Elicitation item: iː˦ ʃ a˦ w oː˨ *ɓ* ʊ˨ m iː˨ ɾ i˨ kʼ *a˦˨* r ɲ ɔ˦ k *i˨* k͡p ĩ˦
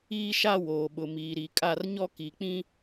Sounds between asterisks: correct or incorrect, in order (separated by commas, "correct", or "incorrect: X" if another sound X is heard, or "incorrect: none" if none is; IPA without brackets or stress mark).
correct, correct, correct